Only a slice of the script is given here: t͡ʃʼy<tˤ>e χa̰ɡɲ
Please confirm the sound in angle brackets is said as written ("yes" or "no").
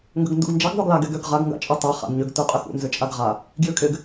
yes